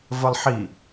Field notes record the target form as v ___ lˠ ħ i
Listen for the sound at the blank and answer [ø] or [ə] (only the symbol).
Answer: ə